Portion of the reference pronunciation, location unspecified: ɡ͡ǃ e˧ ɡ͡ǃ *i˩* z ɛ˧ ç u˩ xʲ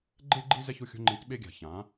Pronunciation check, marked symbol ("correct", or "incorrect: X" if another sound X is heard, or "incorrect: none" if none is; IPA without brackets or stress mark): incorrect: i˧